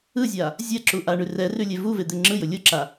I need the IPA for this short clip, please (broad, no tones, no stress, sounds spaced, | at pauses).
ɯ zʲ a | zʲ ɛ ǁ u ʔ a ɳ ʉ r ɛ r ʉ lʲ e v u v e d̪ e ŋ͡ǁ ɯ j ʊ lʲ ʊ ǁ a